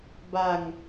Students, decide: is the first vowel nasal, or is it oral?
oral